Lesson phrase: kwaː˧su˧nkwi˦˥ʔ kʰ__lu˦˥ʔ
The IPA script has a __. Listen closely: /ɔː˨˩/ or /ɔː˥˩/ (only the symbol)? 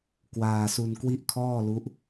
ɔː˥˩